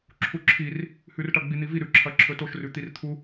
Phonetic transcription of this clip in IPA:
ǁʰuǁʰir | hʉrʈɐ ɡ͡bin̪ivi ɾʉǁʰɐǁʰɵ toʃrʉt̪ir t̪ʰu

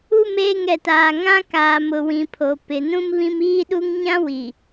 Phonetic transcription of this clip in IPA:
u˦˨m eː˦˨ŋ ɛ˨taː˨ ŋã˦ kaː˨mʊ˨wĩ˨pʰo˨ pɪ˨ nũ˦mβĩ˦m iː˦ɗu˦ŋ ɲã˦ wi˨

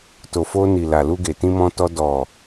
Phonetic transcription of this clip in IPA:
to˨fo˧ni˨ la˨lu˧ɡe˨ tĩ˧mɔ̃˧tɔ˧ dɔ˨

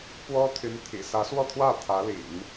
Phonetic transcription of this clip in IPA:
pwɔ˥t̪ʰy˧˥nt̪ʰḭ˨˩ sä˧˥swɔ˥˧t̪ʰwä˥˩ t̪ʰä˧˥lḭ˨˩˦n

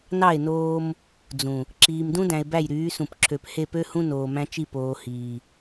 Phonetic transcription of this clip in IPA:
nɑ˦˨e̯noː˦m | d͡zũ˨ | ǁiː˨mdũ˦dæ̃˨e̯ bæ˦˨jɾyː˨˦sũ˨pǁʰø˨p he˦˨pø˦hũ˦ noː˨mæ̃˦t͡ʃi˦˨ poː˨hiː˨

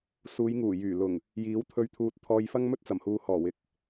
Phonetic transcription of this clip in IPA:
suː˨˧jŋuː˨˩ jyː˨˩ lʊ˨˩ŋ | jiː˨˥wt̪ʰɵ˧ɥ t̪ʰuː˧t̚t̪ʰɔː˧j fɐ˥ŋmɵ˥t̚t͡sɐ˨˩mhuː˨ hɔː˨˩wɪ˨k̚

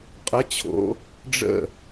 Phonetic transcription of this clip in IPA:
qʼə˧˥˧t͡ɕʰo̰˧˥˧ | ɖ͡ʐə̰˥˨

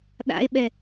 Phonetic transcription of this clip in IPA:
ɗa̰e̯ɓɛ

